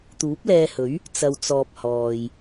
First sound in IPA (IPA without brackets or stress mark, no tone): t̪